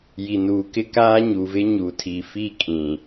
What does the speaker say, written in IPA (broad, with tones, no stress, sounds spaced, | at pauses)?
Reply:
j i˨ n uː˨ k ɪ˦ k aː˦ ɲ u˨ v ɪ˦ ɲ u˨ tʰ i˨ f i˦˨ kʼ ĩ˨